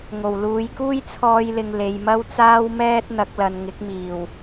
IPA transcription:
ŋo˨˩w luː˨˧jkuː˥jt͡sʰɔː˧jlɪ˨ŋ le˨jmɐ˥wt͡saː˥wmɛː˥t̚ n̪ɐ˨˥k̚lɐ˨n ŋɪ˨˥k̚miː˨˩w

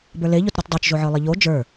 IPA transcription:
bə˞leʎot ɾotdˤot͡ʃʒoʕə˞ lˠiʎo d͡ʒə˞

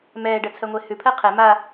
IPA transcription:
mɛːɖɜt͡sʰɜŋʷe hʉpʰɜ qʰɛ ma

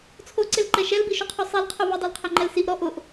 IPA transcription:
t͡sʰoǀelǃɛ ʃɛlbiʃuqʰu sˤɛlqʰo vɪdˤolqʰɛŋ͡ǃɛl siʔɾɔ ʔʊʔ

